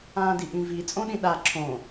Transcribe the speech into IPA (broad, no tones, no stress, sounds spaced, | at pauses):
ãː d i ʔ ĩ v i t͡sʼ õ ɗ ĩ ɗ a ǁʰ õ